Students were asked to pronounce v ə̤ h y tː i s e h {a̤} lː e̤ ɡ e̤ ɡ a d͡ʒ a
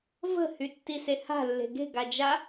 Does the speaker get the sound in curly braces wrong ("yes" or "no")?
no